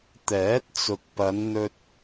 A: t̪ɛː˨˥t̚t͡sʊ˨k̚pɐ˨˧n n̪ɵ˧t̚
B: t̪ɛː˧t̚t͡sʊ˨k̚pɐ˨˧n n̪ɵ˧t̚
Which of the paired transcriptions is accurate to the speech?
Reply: A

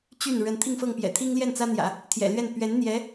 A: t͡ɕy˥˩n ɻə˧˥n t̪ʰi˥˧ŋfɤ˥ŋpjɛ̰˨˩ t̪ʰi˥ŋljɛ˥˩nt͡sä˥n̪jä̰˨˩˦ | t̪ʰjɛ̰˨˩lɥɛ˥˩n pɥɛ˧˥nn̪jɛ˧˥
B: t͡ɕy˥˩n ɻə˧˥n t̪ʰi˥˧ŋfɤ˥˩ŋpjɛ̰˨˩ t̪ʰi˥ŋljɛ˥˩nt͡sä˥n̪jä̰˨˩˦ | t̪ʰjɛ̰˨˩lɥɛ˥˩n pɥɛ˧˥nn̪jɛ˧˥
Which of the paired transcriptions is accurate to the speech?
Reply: B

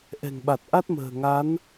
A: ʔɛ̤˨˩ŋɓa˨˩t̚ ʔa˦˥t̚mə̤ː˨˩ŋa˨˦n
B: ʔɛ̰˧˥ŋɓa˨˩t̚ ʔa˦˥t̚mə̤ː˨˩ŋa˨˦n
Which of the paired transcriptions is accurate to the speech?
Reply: A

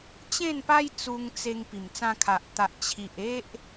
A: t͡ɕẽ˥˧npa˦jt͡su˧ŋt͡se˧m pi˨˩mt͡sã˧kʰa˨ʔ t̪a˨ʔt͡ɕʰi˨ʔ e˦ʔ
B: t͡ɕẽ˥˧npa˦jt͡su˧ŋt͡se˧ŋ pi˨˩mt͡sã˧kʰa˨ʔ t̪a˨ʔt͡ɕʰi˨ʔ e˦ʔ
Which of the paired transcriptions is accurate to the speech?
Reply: B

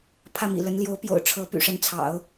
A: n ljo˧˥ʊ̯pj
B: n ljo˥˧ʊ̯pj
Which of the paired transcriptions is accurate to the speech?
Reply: A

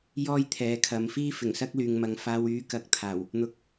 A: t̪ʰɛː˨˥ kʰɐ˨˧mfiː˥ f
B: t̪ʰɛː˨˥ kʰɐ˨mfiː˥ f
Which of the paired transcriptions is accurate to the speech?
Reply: A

